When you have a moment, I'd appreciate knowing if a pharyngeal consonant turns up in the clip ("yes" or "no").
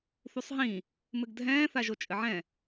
yes